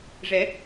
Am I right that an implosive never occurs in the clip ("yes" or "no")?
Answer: yes